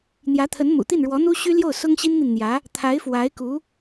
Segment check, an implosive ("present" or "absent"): absent